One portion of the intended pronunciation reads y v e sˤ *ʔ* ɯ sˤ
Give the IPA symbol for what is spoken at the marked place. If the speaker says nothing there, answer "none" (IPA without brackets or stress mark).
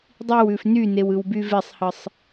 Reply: h